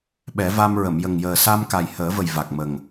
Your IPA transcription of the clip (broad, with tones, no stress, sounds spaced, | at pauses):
ɓ ɛ˨˩˦ v a˧ m ɹ ə˨˩˨ m j ə˨˩ ŋ j əː˨˩ s a˧ m k a˨˩ j h əː˨˩˦ v ə˨˩ j v a˨˩ k̚ m ə˨˩ ŋ